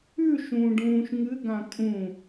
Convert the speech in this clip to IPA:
ʉ ʃ ũː ɖ ũː ʃ ŋ ɨ ɡ ã kʼ ũ

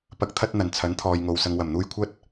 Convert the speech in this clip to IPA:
p ɐ˨˥ k̚ t̪ʰ ɐ˧ t̚ n̪ ɐ˨˩ n t͡sʰ ɐ˨˥ n t̪ʰ ɔː˨ j ŋ o˨ w s ɐ˨ ŋ w ɐ˨˩ m n̪ uː˧ j kʷʰ ɐ˥ t̚

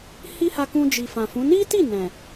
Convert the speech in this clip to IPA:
h i˦ h a˧ k ũ˧ d͡ʒ i˨ f ã˨ f ũ˨˦ n i˦ t i˦˨ n ɛ̃˨

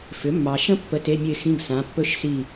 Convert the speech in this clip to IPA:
f ʏ˩˥ mː ɑ˨ ʃ ə̃˦˥ pː ə˧˥˧ t e˧˥˧ mʲ ə˦˨ ɪ̯ x ĩ˧˥˧ ɡ s ã˩˥ pː ɵ˦˥ ʃ s i˦˨

